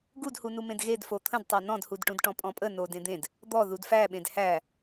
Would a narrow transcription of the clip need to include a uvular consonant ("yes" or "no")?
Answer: no